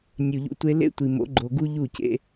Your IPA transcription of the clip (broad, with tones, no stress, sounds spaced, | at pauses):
nʲ u˨ ʎ ṵ˧ tʷ e˧ l ḛ˦ tʷ i˨ m o̰˨˦ ɡ͡ǃ o˨ ɡ u˦ ʎ u˦˨ c ḛ˧